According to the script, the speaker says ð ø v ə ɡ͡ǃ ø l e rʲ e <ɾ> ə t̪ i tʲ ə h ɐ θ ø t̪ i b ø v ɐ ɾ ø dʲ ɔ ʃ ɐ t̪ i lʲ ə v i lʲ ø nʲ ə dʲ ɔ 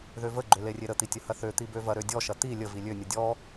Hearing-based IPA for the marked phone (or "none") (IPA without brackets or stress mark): ɾ